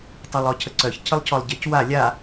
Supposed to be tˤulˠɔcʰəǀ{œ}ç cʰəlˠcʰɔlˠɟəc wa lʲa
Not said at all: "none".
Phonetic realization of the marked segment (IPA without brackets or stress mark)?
œ